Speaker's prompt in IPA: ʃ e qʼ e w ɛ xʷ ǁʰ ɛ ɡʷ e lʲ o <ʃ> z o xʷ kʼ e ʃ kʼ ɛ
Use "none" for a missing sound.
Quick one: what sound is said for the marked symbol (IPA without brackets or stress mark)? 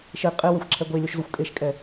ʃ